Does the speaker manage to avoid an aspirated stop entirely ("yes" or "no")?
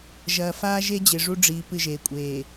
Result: yes